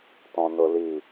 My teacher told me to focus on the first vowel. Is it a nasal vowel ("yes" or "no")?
yes